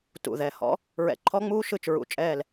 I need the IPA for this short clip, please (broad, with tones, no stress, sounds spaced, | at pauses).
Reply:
t ṵ˧˩ ð ɛ˧˩ h ɔ̰˦˥ | ɹ ɛ̰˧˩ ǃʰ ɔ˦˥ ŋ͡m uː˦˥ ʃ ɯ˧˩ t͡ʃ ɹ ṵ˧˩ t͡ʃʼ ɛː˧˩ l